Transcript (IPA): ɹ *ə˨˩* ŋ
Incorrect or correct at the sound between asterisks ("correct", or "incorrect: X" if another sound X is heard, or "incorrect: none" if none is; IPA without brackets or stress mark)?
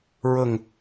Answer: correct